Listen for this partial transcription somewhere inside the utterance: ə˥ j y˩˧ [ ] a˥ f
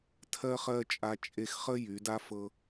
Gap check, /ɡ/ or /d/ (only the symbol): d